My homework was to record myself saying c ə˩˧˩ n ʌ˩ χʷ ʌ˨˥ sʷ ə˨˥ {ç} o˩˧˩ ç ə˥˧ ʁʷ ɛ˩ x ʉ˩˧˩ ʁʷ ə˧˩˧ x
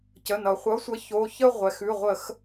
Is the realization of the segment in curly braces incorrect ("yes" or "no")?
no